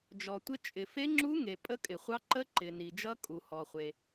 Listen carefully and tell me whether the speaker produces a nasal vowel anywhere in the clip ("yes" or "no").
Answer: no